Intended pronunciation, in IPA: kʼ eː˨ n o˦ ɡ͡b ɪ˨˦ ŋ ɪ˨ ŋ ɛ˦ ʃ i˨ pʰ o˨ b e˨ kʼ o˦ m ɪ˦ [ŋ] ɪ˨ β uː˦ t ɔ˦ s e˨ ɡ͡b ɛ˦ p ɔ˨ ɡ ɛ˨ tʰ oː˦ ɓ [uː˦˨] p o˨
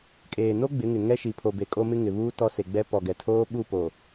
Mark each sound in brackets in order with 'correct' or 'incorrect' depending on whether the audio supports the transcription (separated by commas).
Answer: correct, incorrect